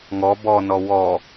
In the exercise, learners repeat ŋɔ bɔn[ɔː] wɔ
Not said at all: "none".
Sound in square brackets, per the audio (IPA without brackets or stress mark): ɔ